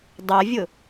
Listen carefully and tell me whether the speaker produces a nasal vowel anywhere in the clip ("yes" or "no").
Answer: no